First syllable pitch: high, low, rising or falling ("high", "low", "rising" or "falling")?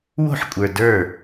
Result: falling